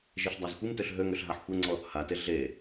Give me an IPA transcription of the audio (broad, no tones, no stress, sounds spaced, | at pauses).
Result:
ʒ e ɬ dˤ a z xʷ i m t ø ɬ ɦ ø ŋ ø ɬ ɦ a ħ xʷ e ŋ͡ǀ ɔː θ h a t e ɮ e